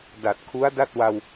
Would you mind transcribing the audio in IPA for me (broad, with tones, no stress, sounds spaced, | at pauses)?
d a˨˩ t̚ kʰ u˦˥ a̯ d a˥˩ t̚ w a˧ w